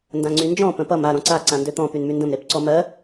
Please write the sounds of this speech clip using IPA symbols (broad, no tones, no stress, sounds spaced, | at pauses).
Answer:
n d ã ŋ͡ǀ y n d͡ʒ ɔ̃ p ə̃ p ʌ m a ɾ ɔ̃ ǀ a ǀ ã n d ø t̪ ɔ̃ p y n m y n d ə̃ m ɾ e p ǀ ɔ m ɜ